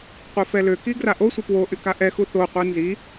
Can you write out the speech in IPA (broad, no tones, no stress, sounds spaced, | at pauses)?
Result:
qʷ e f ɛ l ø k i ɡ r a ʔ o sʷ ə p w o ʔ y k a ʔ ɛ x u θ o qʷ e n z i